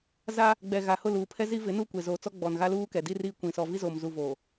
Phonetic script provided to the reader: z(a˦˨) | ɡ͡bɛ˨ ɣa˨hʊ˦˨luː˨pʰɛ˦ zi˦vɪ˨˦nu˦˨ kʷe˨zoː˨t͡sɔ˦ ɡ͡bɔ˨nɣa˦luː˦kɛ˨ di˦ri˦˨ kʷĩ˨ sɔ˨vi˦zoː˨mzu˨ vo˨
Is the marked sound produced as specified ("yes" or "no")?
no